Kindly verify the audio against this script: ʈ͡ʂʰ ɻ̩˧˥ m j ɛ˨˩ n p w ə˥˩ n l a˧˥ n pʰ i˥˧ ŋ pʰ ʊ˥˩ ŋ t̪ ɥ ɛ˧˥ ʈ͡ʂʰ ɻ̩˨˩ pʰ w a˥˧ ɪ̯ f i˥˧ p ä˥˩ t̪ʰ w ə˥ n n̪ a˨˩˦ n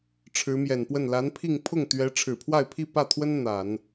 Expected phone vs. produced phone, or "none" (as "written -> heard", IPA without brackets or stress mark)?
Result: f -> pʰ